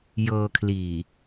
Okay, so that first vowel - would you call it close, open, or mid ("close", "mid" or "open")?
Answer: mid